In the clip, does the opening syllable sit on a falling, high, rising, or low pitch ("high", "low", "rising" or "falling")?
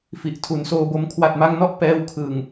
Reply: low